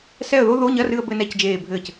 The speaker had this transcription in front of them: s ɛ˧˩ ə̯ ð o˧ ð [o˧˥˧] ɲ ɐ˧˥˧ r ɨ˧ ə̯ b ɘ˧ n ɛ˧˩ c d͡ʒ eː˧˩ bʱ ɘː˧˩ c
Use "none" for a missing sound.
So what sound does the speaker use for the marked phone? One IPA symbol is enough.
o˧˥˧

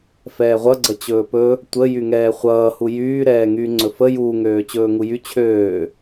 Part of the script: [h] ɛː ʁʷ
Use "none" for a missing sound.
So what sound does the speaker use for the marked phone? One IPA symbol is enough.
f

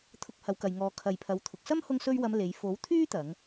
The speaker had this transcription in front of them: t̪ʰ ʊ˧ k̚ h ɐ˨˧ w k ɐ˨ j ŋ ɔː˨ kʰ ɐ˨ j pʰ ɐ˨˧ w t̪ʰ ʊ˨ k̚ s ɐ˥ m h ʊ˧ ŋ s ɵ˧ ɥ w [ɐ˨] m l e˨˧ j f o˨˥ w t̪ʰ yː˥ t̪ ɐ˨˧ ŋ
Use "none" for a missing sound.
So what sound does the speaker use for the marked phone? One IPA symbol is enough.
ɐ˨˧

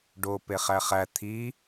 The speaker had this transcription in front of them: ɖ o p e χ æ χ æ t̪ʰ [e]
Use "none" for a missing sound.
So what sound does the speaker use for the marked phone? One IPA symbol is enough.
i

